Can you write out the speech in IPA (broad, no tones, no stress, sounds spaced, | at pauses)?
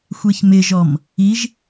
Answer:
xʷ e ç m ɪ ʒ ɔ m | i ʒ